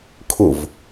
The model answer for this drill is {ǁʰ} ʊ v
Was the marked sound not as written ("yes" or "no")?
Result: yes